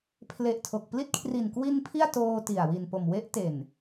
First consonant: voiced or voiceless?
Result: voiceless